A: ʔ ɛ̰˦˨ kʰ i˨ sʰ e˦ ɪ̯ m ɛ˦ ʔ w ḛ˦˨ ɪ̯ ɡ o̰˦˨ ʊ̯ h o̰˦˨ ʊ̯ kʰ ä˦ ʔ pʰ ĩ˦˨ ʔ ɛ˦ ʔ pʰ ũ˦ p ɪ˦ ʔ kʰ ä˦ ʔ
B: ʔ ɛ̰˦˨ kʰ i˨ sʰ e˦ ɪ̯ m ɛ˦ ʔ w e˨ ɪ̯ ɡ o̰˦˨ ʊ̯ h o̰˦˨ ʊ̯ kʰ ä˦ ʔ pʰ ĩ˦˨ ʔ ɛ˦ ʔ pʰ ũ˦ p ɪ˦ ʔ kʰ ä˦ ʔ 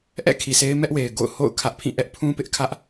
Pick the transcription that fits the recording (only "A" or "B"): B